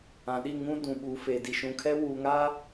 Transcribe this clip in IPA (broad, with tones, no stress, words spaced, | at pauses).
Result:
ã˨ɗi˦˨ ŋũ˦ dũ˨ɓuː˨fe˨ di˨ʃũ˨kʰɛ˦ wuː˨ŋaː˦